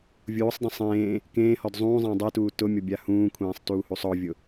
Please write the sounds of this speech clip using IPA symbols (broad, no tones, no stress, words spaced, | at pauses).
vʲuːsˤdˤẽ sˤẽː | kẽːhɔd zˤũːzˤẽː dˤituː tʊmʲɔbʲa hũːkʷʰẽːsˤtuːhusˤ ɔvʲʊ